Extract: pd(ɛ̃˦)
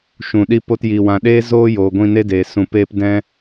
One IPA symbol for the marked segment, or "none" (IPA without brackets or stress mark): ɛ̃˧